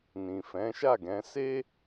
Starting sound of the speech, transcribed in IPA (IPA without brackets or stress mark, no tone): n